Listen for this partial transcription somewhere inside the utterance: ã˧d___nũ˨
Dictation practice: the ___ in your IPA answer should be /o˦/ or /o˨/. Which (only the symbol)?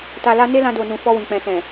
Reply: o˨